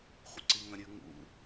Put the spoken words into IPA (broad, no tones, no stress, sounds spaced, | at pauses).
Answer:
χʷ ə̰ ǀ i ŋ ɐ̃ ɾʲ ʉ ŋ ṵ